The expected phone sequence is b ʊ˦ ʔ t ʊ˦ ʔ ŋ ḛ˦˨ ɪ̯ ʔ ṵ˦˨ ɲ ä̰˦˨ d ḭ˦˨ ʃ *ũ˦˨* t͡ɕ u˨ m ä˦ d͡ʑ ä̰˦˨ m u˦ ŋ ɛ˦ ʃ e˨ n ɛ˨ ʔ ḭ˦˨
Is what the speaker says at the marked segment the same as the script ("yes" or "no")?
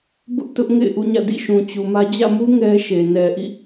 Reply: no